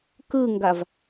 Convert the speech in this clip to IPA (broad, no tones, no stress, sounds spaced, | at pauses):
k ɯ ŋ ɡ a v